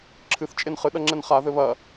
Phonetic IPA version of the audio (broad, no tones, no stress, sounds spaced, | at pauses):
ǁʰ ɨ θ t͡ʃʼ e n χ ɨ ɗ ɐ ŋ͡ǁ ɛ n χ a ð ɘ β ɐ